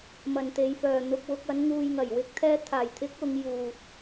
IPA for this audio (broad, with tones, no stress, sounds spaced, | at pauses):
m ɐ˨˩ n t̪ e˨˧ j f œː˨ n̪ ʊ˧ k̚ w ʊ˧ k̚ ɐ˨˧ n ŋ uː˨ j ŋ ɐ˨˩ j w ɪ˨ k̚ t̪ʰ ɛː˧ t̪ʰ aː˨˩ j t̪ʰ ɪ˨˥ k̚ ʊ˨˧ ŋ j uː˨ t̚